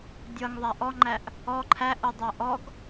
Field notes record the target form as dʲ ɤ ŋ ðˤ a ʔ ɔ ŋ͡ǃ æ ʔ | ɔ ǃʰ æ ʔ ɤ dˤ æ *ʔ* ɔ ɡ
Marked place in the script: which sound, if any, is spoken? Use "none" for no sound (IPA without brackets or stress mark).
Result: ʔ